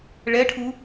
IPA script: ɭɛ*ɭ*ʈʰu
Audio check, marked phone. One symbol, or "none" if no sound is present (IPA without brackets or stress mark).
none